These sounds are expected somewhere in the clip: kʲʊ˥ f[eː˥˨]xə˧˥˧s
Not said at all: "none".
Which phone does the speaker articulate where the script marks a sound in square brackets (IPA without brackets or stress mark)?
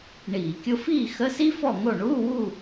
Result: iː˥˨